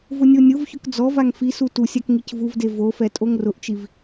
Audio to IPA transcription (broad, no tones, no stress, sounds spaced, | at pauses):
v ʊ nʲ o nʲ ʊ v ç ʊ k d͡z ɔ v a ŋ f i s u t u sʲ a k ŋ i c v u v d e v o f ɛ tʼ o ŋ r ʊ ʔ t͡ʃ i v